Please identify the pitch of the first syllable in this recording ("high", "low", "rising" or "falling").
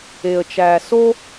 low